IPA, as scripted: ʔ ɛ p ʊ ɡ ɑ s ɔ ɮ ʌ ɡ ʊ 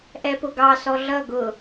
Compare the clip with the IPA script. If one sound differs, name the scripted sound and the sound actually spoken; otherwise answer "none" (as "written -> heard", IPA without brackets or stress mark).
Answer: none